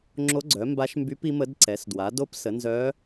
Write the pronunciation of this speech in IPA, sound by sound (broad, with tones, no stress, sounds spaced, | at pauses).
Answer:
ŋ͡ǁ o˧˥ ɡ͡ǀ œ˩˥ m b a˧˥ ʃ m b y˧˥ p i˧˥ m ə˧˥ d ǀ ɛ˩˥ s d w a˩˥ d o˧˥ p s ə˩˥ n z œː˧˥